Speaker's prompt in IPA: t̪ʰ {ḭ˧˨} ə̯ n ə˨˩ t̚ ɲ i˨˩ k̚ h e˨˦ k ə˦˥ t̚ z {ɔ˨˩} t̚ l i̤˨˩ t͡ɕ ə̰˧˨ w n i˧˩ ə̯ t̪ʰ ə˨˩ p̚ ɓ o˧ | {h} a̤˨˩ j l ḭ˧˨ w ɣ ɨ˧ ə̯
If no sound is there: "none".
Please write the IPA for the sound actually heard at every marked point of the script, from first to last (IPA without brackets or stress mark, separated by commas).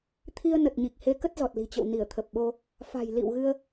i˧, ɔ˨˩, f